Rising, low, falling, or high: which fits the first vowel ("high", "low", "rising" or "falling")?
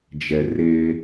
low